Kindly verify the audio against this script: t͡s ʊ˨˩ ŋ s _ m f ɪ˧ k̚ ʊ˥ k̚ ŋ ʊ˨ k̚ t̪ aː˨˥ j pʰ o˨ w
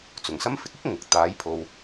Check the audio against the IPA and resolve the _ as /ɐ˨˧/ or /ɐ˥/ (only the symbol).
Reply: ɐ˥